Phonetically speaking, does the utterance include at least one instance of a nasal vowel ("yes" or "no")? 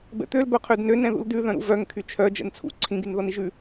yes